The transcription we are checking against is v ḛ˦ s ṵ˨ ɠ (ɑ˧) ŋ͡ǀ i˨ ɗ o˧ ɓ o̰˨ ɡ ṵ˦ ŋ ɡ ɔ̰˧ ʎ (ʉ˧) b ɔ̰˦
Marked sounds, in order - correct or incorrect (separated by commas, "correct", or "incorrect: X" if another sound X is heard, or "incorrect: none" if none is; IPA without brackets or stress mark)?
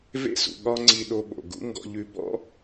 incorrect: ɒ˧, correct